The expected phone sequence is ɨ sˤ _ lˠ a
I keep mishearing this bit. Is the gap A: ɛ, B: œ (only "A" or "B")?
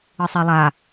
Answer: A